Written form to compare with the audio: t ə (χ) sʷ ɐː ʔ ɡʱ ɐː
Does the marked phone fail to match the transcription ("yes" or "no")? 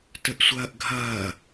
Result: yes